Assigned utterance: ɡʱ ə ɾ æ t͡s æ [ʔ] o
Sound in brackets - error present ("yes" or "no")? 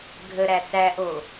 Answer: no